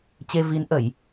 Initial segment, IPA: t͡ɕ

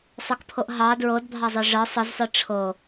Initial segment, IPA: sˤ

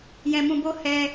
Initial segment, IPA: j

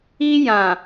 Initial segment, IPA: i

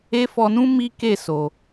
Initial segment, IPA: e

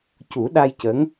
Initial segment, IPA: c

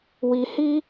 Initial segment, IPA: w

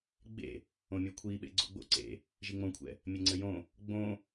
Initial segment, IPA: ɡ͡b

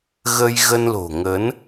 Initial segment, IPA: ɣ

